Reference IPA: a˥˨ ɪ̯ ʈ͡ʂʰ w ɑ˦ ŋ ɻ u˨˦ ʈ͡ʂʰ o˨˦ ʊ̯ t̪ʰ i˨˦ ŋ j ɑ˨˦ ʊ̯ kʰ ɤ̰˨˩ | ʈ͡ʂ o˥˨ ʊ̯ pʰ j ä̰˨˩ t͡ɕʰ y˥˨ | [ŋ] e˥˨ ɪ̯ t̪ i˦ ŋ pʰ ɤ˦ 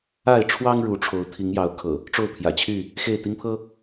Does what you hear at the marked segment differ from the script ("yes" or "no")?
yes